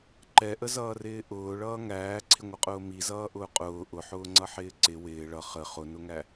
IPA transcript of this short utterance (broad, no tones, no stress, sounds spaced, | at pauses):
ǃ ɛ ʔ ə z ʌː r ɪː ʔ ʊː ɭ ʌː ŋ æː ǀʰ ɪ ŋʷ ʌ qʼ ʊː m i z ʌː ʔ ʊː qʼ ʊː ʔ ʊ ħ ʊː ŋ͡ǀ ʌ ħ ɪː ǀ ɪ w ɪː ɭ ʌ χ ə χ ʊ n ʊ ŋ æ